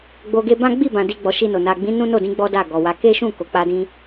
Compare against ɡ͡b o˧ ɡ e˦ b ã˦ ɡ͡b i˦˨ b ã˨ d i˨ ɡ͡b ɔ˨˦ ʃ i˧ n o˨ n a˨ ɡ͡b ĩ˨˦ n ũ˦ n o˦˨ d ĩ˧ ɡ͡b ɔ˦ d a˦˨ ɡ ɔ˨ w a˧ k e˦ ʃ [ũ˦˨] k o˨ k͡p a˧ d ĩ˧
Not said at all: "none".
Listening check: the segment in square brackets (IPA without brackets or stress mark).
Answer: ũ˦˨